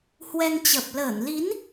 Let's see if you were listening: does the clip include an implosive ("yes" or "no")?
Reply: no